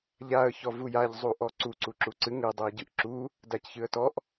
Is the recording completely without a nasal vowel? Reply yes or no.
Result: yes